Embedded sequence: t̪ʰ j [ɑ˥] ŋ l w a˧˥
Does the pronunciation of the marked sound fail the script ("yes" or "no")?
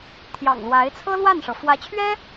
yes